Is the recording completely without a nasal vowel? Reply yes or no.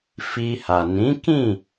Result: no